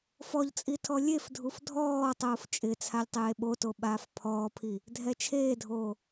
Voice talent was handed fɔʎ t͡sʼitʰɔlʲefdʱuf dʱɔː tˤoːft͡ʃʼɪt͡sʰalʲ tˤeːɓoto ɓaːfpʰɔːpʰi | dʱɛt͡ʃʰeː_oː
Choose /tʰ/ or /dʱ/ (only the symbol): dʱ